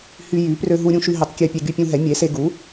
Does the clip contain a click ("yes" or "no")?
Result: no